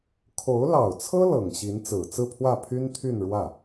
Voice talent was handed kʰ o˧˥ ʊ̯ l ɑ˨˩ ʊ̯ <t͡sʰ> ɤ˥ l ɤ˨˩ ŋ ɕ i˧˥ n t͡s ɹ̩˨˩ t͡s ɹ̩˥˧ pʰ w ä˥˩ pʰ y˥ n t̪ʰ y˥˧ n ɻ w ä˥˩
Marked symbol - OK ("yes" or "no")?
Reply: yes